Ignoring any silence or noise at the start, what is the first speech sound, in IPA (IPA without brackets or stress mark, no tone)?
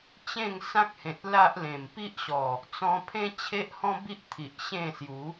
t͡ɕ